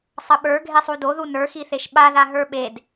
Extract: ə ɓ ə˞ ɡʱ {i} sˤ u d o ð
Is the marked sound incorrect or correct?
incorrect